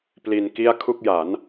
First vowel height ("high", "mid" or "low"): high